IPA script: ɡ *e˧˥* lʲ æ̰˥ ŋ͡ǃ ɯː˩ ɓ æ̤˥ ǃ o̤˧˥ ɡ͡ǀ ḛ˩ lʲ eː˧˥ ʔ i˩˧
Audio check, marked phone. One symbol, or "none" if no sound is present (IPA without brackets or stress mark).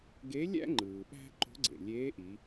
e˧˥